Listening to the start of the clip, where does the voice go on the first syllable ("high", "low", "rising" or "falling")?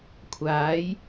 rising